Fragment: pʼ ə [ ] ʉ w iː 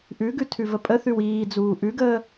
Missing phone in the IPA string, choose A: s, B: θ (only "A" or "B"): B